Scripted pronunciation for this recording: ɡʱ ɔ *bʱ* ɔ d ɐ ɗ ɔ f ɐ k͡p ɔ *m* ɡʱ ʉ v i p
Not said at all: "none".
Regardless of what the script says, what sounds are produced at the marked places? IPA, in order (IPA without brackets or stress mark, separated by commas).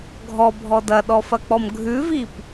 bʱ, m